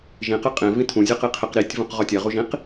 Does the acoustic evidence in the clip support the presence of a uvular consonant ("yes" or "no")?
yes